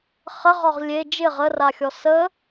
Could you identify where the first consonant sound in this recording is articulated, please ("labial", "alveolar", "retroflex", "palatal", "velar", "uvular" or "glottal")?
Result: uvular